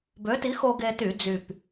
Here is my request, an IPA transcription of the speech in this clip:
b ø˨˥ t i˨˥ x o˧ ɡ e˧ t y˧˩˧ d͡z y˨˩ p

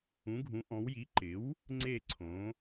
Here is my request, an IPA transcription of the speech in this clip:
ũ˩˥ ɡʱ ũ˩˥ ʔ ɔ̃˩˥ w j i˩˥ ǃ ɪ˩˥ w | ŋ͡ǀ e˥˨ ǀʰ õ˩˥

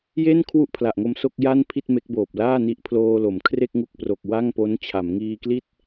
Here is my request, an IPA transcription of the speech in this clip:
j e˥˩ n kʰ w u˥˩ ʔ pʰ l a˨˩ ʔ ŋ o˧ m s o˥˩ k̚ j a˥˩ n pʰ i˥˩ t̚ m e˦˥ k̚ b oː˨˩ p̚ l aː˥˩ n i˦˥ ʔ pʰ l oː˧ l o˩˦ m kʰ r e˥˩ k̚ ŋ u˦˥ k̚ p r o˨˩ k̚ w a˥˩ ŋ p o˦˥ n t͡ɕʰ a˩˦ m ŋ iː˧ k l i˥˩ t̚

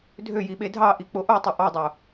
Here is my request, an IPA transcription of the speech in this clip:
dʱ ø j i ɓ e dʱ ɑ ʔ i k͡p o ʔ o tˤ ɐ ʔ ɑ dˤ o

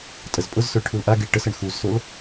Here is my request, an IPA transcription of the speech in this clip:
tʼ ə z pʼ ʊ z s ø ɭ ʈʰ u l ʔ a ɡ i ɭ ʈ ə s ə ɳ x u z s o l

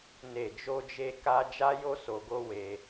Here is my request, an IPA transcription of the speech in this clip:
n e˨ d͡ʒ o˧ d͡ʒ e˧ k a˧ d͡ʒ a˦ j o˦ s o˧ ɡ o˦ w e˧

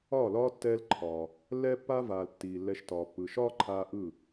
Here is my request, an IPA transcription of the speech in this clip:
ɒː˦˨ l ɒː˦ tː ɛː˦ l ǃʰ ɒː˨ | lː ɛː˦ pː aː˦ v aː˨ l tː iː˨ lː ɛ˧ ʃ t ɒː˨ pː ɯ˨ ʃ ɒː˦ ǃʰ aː˧ ʔ ɯ˦˨

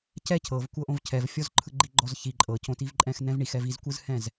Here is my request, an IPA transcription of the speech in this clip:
c ɛ cʰ ɤ v kʷ ɤ ʔ õ v cʰ ɛ v fʲ ɔ z ǃʰ ɯ ɡ͡ǃ i ɡ͡ǃ ɔ z ç i ǃʼ ɤ c õ t i v ǃʼ ɛ̃ x n ɛ̃ v ɳ i x ɛ v i z kʷ ɯ z h ɛ̃ z

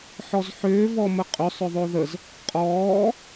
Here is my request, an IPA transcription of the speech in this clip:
ħ ɔ z ħ ʏː v ɔ m ə qʼ ʏ sˤ ʏ ðˤ o ð ə z | qʼ ɔː

